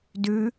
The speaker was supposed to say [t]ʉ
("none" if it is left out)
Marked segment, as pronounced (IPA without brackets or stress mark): d